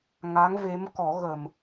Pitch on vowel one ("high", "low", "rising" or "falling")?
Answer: rising